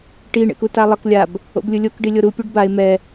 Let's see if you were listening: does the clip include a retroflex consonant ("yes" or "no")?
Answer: yes